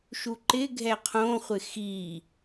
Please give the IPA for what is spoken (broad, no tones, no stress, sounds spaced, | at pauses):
ʃ u ǃ ɪ ɡʱ ɛ qʰ õ χʷ ɪ x i